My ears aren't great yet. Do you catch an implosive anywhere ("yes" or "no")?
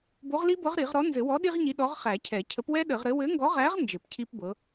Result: yes